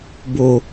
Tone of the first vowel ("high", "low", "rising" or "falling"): low